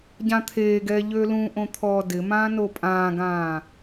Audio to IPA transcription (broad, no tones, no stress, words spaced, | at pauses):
ɟãt̪ʰeːɡɛː ʎølũʔõ t̪ʰɔːdɪmãː nopʼãːɡãː